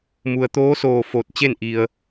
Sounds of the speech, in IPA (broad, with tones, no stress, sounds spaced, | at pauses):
m u˩ ə̯ t̪ oː˧˥ s oː˧˩ f o˧˩ t̚ t͡ɕ e˥˨ n ʔ i˩ ə̯